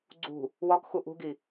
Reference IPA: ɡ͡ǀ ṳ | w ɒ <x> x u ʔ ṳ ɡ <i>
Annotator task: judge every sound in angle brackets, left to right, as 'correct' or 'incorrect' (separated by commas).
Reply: incorrect, correct